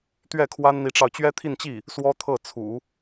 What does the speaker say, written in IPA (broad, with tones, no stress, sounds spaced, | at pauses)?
t̪ ɥ ɛ˥˩ kʰ w a˥ n n̪ i˧˥ ʈ͡ʂ ɑ˧ ʊ̯ t͡ɕ ɥ ɛ˥ t̪ʰ i˥˧ n t͡ɕ i˥˩ | s w ɔ˥ t̪ʰ ɤ˥˩ t͡sʰ ṵ˨˩˦